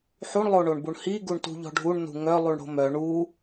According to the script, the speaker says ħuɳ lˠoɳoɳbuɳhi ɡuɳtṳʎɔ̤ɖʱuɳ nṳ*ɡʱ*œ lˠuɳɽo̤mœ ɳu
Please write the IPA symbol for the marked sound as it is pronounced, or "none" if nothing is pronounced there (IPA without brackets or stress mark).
ŋ